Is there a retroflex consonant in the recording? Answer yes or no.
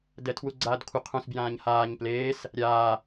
no